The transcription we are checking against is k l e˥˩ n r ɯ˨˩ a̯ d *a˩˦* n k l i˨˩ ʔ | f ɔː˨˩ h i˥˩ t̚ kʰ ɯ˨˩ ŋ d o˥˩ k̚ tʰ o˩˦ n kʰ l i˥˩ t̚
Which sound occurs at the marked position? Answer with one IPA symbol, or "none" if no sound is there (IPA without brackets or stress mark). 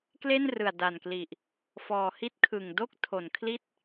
a˨˩